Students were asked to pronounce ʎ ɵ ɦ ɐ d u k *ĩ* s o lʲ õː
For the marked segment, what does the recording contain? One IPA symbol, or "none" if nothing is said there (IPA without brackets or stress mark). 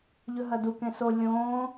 ẽ